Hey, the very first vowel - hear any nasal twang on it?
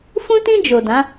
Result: yes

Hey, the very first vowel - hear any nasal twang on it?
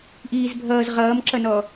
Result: no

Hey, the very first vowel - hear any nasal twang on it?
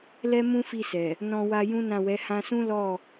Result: no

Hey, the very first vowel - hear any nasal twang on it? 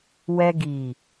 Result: no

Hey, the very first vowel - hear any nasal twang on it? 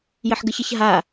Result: no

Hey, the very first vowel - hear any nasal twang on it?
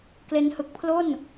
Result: no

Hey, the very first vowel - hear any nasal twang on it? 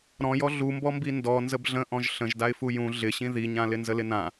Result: yes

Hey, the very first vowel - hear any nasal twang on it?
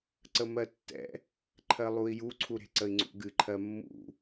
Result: no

